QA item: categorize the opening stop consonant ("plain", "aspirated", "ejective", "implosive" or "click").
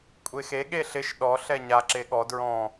ejective